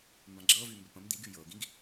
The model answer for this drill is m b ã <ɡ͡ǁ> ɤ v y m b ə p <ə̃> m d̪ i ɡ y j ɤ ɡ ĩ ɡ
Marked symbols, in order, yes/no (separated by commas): yes, yes